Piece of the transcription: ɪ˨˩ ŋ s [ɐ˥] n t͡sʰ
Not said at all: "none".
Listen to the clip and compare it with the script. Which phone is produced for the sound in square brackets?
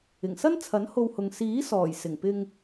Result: ɐ˥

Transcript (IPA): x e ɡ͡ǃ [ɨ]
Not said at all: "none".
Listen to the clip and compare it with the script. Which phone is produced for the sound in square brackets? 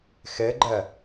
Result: ɛ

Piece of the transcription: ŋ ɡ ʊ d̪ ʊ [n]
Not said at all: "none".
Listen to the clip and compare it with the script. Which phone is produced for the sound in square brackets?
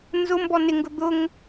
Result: ŋ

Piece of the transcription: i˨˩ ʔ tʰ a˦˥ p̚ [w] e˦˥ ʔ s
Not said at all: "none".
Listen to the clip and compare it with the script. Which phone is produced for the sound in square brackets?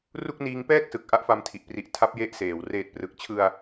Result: j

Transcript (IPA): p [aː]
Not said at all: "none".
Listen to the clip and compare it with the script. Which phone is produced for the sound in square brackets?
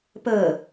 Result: əː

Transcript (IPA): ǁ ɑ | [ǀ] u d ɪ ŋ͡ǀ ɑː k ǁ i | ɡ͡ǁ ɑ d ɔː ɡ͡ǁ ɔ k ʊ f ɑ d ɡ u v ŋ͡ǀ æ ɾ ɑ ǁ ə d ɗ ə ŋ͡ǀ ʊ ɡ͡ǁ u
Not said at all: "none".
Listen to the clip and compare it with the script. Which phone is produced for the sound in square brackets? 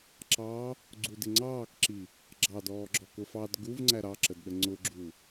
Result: ɡ͡ǀ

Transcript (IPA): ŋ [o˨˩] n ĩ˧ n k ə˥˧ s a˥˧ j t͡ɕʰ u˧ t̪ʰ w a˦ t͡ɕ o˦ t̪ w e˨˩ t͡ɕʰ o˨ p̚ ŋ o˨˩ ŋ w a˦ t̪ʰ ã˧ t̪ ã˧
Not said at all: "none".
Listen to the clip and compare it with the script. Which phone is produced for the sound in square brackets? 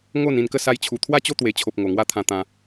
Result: o˥˧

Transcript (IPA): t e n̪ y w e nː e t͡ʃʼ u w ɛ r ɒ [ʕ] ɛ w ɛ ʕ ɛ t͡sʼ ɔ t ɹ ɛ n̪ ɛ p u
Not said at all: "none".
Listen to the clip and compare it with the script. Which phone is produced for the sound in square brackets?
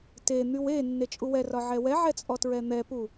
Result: ʕ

